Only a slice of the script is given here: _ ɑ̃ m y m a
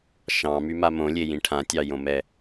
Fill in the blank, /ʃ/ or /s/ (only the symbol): ʃ